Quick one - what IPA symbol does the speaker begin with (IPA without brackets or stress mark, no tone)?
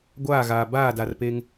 ɡʷ